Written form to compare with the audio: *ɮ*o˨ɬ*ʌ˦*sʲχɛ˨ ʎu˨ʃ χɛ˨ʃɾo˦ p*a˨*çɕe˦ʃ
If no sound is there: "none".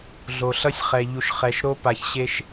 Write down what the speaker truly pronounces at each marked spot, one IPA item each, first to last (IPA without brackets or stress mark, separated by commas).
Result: ɮ, ʌ˦, a˨